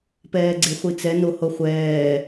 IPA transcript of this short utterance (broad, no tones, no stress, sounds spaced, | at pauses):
p ɛː ɡ͡ǀ e χʷ i t͡s ɛ n o h o χʷ ɛː